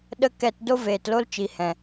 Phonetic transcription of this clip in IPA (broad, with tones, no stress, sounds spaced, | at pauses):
ɗ ə˧ k ɛ˨ t d o˦ v eː˨ t l o˦ l t͡ʃ i˨ h ɛ̃˨